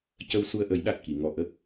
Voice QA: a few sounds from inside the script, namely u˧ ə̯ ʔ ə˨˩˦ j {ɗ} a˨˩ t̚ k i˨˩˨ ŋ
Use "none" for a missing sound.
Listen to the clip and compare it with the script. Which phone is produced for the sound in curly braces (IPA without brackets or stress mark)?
ɗ